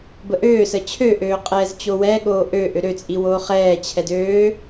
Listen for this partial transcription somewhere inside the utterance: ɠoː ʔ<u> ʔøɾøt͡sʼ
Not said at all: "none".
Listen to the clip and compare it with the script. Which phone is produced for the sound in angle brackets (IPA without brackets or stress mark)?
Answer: ø